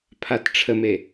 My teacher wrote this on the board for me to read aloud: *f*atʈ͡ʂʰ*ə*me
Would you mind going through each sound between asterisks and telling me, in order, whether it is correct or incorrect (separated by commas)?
incorrect, correct